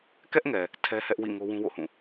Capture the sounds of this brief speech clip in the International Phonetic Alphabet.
k ɛ˦ ʔ ŋ ɛ˨ | tʰ ɛ˦ h ɛ˦ ʔ w ḭ˦˨ ŋ o˦ w ũ˦ w o̰˦˨ h ũ˦˨

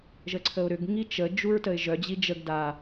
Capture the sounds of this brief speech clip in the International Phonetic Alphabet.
ʒ ə ǀʰ ə ʊ̯ ɾ ʏ ɡ ŋ i t͡ʃ ə d͡ʒ u ɹ t ə ɪ̯ ʒ œ d͡ʑ i d͡ʒ ə ɡ d a

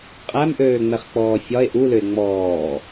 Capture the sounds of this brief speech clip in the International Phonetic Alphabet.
qʼ æ m ʔ øː ŋ͡m ɛ χ k͡p ɔː fʲ ɒ e̯ ʔ u l ʏ e̯ ŋ͡m ɔː

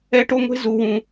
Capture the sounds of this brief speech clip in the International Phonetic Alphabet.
ɛ˦ ʈ o˦ ŋʷ e̤˦ z u˦ w ũ˦

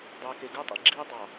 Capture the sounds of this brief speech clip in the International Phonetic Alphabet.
dˤ eː˨ k e˨ ɡ u˦ tˤ ḭ˨ ɡ͡ǁ iː˦ dˤ ɑ˨

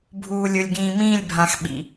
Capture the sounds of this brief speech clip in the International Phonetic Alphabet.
bʱ uː˨ lʲ ʊ˨ lʲ ɡ ĩː˨ m ĩː˦˨ lʲ bʱ ã˨ x ɓ ḭ˨

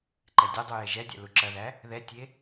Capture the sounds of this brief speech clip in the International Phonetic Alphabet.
ǃ ɛ dʲ ɐ dˤ u j e ʒ ɛ dʲ a̰ l u ǁ ɐ ð æ | ð ɛ tʲ e

